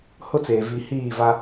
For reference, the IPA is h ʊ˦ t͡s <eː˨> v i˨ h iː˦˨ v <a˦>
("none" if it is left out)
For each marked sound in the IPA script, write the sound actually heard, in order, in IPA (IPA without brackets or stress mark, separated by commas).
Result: eː˨, a˦